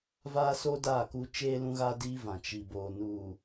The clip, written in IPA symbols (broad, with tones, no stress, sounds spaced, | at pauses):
v aː˦ s oː˦ d a˦˨ k u˦ t͡ʃ eː˦ l ũ˦ ɣ a˦ d iː˦ v ã˨ t͡ʃ i˨ b oː˨ n uː˨